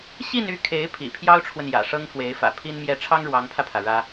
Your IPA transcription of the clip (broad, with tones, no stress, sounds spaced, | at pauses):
ɕ i˥˧ n y˥˩ kʰ e˧˥ ɪ̯ pʰ ḭ˨˩ pʰ j ɑ˥ ʊ̯ ʈ͡ʂʰ w ə˨ n j ä̰˨˩ ʂ ɤ˥ ŋ f w e˧˥ ɪ̯ f ä̰˨˩ pʰ i˥ n m j ɛ˥˩ ʈ͡ʂʰ ɑ˥ ŋ ɻ w ɑ˧˥ ŋ pʰ ä˧ pʰ ä˩ ɻ ä˥